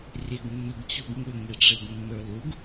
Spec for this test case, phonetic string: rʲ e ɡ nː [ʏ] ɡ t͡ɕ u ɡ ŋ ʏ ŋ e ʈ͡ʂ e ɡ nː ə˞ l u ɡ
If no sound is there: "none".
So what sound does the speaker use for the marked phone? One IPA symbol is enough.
ʏ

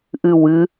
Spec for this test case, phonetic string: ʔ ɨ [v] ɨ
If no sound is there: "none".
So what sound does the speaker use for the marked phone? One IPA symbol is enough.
w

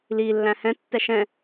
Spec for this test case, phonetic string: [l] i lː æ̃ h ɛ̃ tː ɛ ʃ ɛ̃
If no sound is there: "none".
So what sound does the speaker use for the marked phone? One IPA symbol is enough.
l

